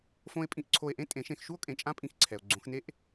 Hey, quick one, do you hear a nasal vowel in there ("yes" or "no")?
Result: yes